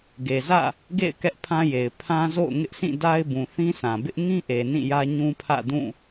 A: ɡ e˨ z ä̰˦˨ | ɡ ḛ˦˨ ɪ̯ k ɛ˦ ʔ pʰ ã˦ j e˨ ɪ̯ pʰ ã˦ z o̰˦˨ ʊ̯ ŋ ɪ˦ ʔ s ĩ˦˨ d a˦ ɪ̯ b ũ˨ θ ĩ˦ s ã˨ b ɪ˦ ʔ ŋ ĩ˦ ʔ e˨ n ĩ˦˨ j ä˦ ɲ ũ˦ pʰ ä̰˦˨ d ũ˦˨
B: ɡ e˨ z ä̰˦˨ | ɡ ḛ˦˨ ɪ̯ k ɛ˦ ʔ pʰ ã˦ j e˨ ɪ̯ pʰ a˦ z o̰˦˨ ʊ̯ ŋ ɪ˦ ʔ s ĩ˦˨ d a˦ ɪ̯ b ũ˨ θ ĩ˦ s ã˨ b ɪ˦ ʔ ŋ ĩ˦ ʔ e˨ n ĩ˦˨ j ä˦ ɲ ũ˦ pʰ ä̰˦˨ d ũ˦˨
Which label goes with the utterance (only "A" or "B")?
A